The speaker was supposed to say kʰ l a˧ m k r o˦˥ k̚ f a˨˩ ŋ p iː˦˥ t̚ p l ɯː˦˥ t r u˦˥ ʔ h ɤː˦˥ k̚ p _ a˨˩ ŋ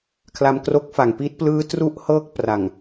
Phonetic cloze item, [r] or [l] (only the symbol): r